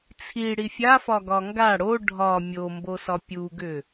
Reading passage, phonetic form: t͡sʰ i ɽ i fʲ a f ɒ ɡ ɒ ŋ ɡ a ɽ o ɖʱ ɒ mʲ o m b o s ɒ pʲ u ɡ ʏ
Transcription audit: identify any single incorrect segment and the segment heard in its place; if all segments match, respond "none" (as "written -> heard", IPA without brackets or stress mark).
none